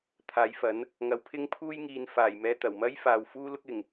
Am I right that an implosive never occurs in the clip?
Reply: yes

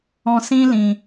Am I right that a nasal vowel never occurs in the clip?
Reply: no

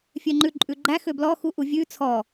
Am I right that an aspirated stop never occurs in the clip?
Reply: no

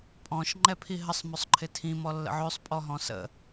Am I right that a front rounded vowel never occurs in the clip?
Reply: no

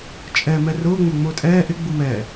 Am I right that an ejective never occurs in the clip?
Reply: no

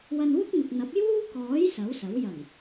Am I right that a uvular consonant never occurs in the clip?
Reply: yes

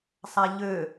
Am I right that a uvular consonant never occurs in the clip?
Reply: yes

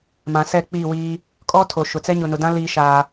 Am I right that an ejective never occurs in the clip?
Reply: no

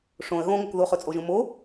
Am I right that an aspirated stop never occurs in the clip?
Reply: yes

